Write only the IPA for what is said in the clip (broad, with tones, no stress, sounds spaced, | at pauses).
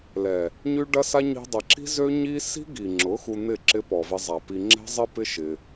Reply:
l ɛ˨ | ɲ y˦ ɖ ɐ˦ s a˦ ɲ i̤˧ dˤ ə˨ ǁ i̤˦ z ø˦ ɲ i˦ s i̤˦ ɡ i˨ ŋ͡ǁ ʊ˨˦ x u˧ n̪ ɪ˦˨ ǁ ɪ˦ p ɔ˨ v ɪ˧ zˤ a˨ p i˧ ŋ͡ǁ ɛ̤˦ zˤ ɪ˦ p ɪ˦ ʃ ɪ˧